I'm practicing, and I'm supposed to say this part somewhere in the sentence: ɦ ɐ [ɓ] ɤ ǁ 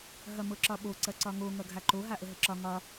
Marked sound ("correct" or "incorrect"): incorrect